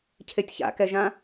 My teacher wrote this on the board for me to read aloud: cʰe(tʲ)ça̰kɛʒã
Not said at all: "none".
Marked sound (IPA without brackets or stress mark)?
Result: tʲ